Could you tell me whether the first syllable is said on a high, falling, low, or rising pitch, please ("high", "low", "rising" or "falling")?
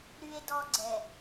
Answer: high